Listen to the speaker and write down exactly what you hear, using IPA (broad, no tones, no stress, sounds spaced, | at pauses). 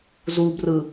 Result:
z u b r ɯ